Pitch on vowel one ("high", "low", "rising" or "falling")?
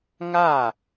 falling